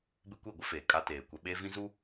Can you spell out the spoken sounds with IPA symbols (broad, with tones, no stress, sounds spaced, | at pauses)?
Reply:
b ɪ˦ kʷ i˦˨ ɡʷ ɪ˦ f eː˨ kʼ a˦ t eː˨ kʷ ɛ˦ ɓ eː˦ v ĩ˦ z u˦